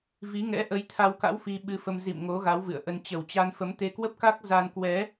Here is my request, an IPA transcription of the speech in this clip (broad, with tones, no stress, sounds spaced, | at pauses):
v i˨˦ ŋ ɛ̰˧˥ ʔ ə˨˦ j t̪ʰ a˧ w k a̰˧˥ w f i˧ ɓ ɨ˧ f ə˧ m z ḭ˧˨ m ŋ o˨˦ ɣ a˨˦ w v ɨ̰˧˨ ə̯ ʔ ə˧ n t͡ɕ ə˨˩ w t͡ɕ a˧ n f ə˨˦ m t̪ e˧ k w ə˦˥ p̚ k a˦˥ k̚ z a˧ n k w ɛ˨˦